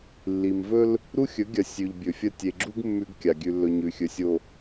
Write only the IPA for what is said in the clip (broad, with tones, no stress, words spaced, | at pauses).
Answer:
lːi˨mvɵ˦l | ɾu˦xʲɵ˨˦ɡʲɐ˨ sʲʉ˨ʎbʲɵ˨fʲɐ˦ tʲe˨ɡ͡ǁu˦ɡ mːʉ˦ɡkʲa˨ ɡʲʉ˨lːɵ˨ ɲʉ˨xʲɵ˨sʲo˨